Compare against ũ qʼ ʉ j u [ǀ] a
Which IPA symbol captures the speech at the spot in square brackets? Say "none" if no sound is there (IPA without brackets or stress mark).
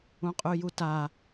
t